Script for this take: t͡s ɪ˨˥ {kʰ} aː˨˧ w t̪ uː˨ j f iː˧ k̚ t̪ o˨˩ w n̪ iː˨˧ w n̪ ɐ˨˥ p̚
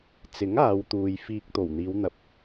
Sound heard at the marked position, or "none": ŋ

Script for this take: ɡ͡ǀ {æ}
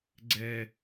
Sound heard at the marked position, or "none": ɛ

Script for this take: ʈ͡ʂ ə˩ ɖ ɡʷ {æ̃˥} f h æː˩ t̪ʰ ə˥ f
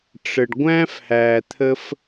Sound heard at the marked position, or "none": æ̃˥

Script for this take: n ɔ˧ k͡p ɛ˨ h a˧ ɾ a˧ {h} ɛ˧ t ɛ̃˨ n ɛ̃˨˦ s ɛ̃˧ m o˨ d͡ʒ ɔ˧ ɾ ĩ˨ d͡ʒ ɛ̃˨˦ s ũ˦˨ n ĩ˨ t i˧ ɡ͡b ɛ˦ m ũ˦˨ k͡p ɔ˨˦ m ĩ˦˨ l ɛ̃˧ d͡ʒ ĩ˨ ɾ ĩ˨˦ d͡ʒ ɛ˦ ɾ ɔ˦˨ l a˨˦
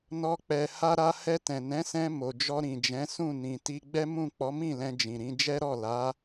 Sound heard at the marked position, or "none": h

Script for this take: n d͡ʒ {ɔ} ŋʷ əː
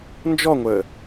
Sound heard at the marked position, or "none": ɔ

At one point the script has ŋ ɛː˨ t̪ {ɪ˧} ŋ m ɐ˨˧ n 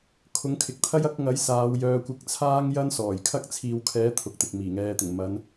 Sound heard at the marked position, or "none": ɪ˨˩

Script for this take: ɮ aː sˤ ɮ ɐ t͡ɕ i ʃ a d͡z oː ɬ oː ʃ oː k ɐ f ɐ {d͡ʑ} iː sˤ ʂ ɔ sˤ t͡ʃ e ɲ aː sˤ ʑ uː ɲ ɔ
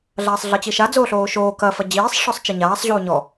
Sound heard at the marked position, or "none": d͡ʑ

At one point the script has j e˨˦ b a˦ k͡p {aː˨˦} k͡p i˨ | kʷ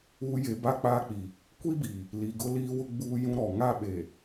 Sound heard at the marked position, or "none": aː˦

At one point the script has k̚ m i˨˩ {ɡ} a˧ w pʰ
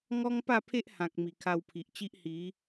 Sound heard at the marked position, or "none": kʰ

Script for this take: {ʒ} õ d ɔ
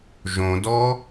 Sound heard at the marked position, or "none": ʒ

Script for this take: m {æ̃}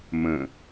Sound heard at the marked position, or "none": ə̃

